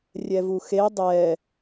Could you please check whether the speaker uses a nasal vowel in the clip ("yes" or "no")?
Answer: no